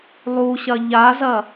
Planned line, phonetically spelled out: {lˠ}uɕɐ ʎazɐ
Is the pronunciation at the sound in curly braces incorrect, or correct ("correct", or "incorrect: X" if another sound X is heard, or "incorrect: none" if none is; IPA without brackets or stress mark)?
correct